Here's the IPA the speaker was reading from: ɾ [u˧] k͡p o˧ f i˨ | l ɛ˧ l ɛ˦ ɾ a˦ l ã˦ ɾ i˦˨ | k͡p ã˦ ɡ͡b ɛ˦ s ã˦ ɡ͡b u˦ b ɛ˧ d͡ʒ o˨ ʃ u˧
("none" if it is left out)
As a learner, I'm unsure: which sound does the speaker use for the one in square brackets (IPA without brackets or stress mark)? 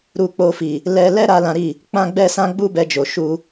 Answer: u˧